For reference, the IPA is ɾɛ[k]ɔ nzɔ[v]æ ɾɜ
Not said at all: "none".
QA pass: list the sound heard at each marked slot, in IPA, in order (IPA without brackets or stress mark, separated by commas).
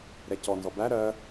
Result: c, b